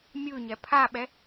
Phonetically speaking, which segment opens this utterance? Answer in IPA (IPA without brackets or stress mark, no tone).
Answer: mʲ